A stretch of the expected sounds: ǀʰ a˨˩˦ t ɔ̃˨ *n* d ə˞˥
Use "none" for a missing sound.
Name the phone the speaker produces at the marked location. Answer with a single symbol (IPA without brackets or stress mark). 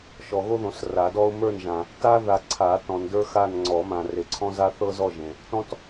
n